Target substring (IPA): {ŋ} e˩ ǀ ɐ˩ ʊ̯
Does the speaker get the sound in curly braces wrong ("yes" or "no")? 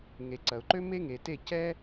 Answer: no